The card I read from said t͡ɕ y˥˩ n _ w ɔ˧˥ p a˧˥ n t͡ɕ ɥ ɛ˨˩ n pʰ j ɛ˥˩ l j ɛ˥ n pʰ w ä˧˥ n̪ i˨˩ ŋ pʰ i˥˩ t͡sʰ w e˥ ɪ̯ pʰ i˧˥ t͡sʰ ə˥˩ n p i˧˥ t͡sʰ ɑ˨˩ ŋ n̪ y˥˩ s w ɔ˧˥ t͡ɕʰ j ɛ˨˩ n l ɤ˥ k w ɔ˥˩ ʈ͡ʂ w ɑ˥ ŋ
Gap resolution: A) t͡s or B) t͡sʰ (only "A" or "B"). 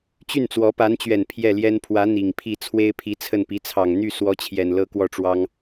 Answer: A